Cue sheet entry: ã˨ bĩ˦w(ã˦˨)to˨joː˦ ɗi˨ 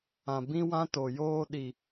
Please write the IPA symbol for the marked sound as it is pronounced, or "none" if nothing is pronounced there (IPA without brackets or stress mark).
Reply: ã˦